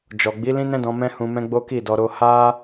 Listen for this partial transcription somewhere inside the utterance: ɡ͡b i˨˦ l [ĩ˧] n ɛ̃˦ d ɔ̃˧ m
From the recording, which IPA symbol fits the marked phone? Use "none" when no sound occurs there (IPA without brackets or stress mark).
ĩ˦